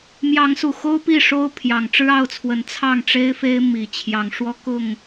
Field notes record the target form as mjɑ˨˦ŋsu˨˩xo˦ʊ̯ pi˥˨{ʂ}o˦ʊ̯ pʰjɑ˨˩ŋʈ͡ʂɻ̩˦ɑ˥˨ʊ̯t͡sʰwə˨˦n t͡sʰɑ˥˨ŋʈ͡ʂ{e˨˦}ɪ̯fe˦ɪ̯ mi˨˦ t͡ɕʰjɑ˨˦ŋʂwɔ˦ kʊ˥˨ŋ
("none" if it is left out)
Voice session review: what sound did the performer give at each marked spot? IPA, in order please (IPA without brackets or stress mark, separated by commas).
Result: ʂ, e˦